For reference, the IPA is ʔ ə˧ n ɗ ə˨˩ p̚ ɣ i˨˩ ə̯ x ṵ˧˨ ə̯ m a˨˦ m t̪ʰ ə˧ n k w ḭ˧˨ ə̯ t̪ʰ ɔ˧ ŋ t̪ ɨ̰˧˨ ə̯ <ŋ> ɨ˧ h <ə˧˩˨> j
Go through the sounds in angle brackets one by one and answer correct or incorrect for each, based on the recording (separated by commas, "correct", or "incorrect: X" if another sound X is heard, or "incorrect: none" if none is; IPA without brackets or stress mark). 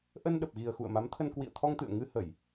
correct, correct